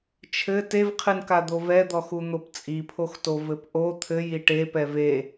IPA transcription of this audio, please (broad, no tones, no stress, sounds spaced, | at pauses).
t͡ʃʰ ɘ t e v qʰ ɨ n k a d̪ o v ɛ d̪ ɔ x u n̪ o p t͡sʼ i pʰ o x t o v ɘ p ʔ o t̪ʰ ɘ j i ʈ e p ɛ v e